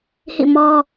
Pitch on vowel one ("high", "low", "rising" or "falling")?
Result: falling